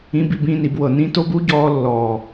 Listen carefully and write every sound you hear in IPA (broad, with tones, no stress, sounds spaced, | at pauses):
ĩ˧ b i˦˨ b ĩ˦˨ n i˨ b w ɤ˨ n ĩ˦ t o˦ b u˦ ɟ ɔː˧ lː ɔː˨